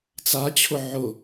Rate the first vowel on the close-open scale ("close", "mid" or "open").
open